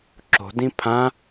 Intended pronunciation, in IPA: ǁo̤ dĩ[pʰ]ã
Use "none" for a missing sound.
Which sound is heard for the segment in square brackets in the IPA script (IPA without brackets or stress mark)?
pʰ